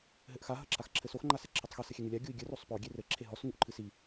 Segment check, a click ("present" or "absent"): present